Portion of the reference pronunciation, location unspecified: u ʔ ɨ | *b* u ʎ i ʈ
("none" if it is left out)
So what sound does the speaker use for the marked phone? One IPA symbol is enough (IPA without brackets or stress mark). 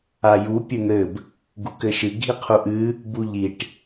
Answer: b